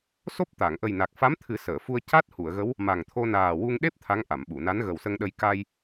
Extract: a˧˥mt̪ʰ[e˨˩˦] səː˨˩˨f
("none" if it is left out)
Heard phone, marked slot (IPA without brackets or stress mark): ɨ˨˩˦